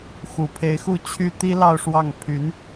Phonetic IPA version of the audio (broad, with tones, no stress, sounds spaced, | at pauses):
x u˨˩ pʰ e˧˥ ɪ̯ x u˥˩ t͡ɕʰ y˥ t̪ i˥ l ɑ˥˧ ʊ̯ ʂ w ɑ˥˩ ŋ pʰ y˧˥ n